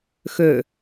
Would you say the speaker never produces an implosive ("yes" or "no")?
yes